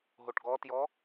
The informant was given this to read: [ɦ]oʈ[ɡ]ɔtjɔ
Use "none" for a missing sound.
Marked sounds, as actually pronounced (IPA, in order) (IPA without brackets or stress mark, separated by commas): ɦ, ɡ